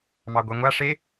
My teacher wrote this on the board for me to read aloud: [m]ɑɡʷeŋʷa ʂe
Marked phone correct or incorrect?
correct